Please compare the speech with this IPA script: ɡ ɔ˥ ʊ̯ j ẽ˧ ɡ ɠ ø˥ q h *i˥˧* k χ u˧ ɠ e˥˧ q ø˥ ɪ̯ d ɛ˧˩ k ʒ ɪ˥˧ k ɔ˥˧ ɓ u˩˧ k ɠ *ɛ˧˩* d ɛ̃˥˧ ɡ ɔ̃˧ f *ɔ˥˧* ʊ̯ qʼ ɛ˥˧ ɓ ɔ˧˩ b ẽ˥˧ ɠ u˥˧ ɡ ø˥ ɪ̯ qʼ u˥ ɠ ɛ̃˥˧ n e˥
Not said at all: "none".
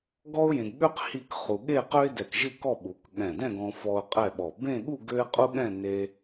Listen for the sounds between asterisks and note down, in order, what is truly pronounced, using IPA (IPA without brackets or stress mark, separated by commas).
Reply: i˥˧, ɛ̃˧˩, ɔ˧